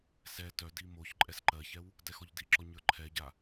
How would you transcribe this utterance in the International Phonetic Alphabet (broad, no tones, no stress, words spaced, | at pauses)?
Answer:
sɛ tœdi moç ǃʼɛsǃɜçɛw | dɛxɔʎdiǁɔ ɲə˞ǃʰɛɟa